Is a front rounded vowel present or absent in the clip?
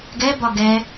absent